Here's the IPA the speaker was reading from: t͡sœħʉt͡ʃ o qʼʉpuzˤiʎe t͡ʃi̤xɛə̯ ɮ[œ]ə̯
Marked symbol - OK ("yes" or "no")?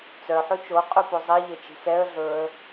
no